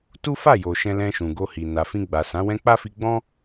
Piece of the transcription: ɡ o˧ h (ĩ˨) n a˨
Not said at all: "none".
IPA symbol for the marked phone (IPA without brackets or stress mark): i˨